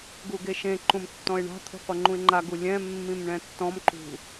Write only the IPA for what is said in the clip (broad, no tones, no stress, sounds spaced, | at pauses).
ɡ u ɡ e ʃ ẽ ǃ ũ m tː ɔ̃ ɪ̯ ɳ a̤ t̪ʰ ṳ qʷ ɤ ŋ͡ǃ ũ ɪ̯ ŋ͡ǃ a ɡ u lʲ ɛ̃ mː ĩ m ɳ ɛ̃ tː ɔ̃ m ǃ ṳ